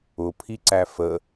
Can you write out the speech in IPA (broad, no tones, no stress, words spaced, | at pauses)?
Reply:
ʊpʰiǀæ fə